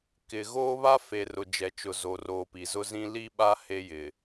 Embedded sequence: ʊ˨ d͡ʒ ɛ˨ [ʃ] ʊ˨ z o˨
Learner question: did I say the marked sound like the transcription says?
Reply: no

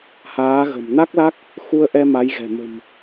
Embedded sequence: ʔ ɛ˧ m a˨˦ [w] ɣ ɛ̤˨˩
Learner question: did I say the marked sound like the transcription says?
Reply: no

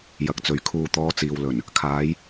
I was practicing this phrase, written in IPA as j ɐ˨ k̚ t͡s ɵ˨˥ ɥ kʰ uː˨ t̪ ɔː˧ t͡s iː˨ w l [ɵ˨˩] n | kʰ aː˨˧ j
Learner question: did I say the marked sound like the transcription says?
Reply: yes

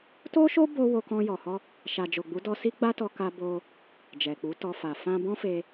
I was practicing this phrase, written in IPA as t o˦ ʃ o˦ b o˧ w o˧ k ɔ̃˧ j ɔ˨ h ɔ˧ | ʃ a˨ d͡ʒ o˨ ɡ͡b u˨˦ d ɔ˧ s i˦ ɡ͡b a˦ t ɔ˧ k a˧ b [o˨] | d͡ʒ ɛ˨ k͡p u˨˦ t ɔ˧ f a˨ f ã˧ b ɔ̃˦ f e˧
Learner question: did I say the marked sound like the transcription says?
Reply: no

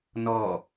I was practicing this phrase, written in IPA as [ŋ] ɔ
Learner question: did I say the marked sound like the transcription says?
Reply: no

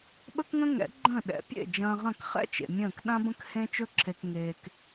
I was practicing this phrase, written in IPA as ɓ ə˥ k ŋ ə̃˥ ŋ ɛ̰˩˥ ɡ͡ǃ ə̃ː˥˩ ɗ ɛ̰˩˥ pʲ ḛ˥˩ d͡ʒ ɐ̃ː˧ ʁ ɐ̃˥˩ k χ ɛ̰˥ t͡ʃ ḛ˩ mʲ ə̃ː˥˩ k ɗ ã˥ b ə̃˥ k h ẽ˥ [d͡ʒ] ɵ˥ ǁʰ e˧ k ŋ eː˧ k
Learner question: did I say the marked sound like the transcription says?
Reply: no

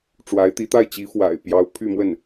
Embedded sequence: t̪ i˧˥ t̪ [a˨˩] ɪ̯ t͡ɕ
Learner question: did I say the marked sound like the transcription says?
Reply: no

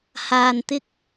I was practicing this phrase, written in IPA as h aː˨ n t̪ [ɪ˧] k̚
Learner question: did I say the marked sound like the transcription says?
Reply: yes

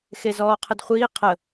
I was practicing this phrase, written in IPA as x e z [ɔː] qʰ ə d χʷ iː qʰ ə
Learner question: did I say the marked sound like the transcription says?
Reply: yes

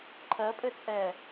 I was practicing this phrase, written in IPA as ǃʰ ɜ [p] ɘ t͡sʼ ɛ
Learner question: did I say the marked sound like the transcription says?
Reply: no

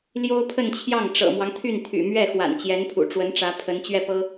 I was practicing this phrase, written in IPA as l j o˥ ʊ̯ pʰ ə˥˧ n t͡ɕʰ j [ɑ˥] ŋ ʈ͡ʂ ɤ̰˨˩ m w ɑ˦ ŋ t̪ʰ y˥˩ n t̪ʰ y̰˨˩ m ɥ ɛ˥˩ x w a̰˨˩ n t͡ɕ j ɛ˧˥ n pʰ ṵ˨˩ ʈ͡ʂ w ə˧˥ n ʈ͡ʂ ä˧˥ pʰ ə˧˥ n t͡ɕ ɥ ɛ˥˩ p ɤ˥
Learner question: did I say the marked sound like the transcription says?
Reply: no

